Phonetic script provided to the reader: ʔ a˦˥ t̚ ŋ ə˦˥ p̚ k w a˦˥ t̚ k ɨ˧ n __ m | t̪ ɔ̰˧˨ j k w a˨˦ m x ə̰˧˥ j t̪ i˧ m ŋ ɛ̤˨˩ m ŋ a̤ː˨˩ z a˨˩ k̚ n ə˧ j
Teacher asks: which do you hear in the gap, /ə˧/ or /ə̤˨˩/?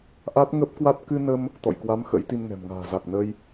ə˧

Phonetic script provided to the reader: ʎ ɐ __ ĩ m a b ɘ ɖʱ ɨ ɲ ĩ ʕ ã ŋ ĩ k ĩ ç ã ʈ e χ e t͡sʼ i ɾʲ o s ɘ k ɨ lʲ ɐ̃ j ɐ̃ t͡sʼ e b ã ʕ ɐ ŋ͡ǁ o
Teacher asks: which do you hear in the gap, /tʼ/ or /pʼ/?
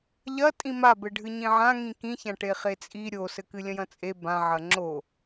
tʼ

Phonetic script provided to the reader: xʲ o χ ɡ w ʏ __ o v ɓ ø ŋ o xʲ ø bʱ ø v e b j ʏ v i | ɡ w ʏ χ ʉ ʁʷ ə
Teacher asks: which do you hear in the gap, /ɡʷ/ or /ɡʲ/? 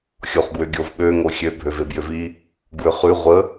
ɡʲ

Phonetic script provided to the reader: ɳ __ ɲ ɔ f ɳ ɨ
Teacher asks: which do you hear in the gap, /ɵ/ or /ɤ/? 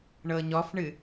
ɤ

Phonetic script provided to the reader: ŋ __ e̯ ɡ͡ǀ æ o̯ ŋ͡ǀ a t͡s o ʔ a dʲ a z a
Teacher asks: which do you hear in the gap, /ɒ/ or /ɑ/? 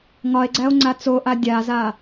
ɒ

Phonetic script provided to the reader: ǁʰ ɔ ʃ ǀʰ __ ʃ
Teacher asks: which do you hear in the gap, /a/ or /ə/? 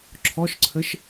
ə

